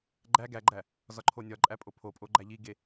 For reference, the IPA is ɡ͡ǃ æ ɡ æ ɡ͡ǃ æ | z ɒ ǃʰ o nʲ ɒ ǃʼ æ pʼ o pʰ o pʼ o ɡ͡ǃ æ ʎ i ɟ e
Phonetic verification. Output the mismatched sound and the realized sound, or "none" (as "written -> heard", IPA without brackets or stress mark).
ɟ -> ɡ